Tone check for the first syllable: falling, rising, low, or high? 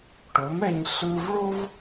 rising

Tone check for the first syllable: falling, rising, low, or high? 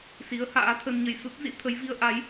rising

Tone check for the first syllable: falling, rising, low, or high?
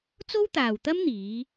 high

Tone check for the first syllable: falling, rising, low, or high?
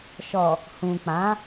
low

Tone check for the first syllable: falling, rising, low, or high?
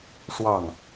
falling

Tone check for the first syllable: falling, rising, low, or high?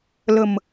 low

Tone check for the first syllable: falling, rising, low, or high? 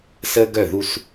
high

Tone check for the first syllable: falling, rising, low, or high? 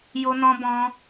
high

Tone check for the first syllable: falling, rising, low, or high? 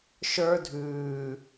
high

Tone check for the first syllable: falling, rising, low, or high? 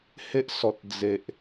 high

